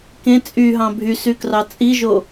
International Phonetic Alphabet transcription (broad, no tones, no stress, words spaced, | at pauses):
kẽ t͡sʼyɦɑ̃ bʱysykrɑ t͡sʼiʒo